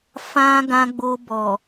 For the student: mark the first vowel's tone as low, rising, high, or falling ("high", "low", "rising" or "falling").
high